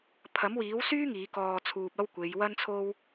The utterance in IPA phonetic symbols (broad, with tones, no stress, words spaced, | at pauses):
pʰɐ˨˥mwiː˨˥wsyː˥ ŋiː˨˥kɔː˧t͡sʰuː˧p̚ ɐ˥w kʷe˨˧j wɐ˥nt͡sʰo˥w